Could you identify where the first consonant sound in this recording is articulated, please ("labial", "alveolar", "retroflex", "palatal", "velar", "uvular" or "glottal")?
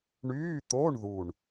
retroflex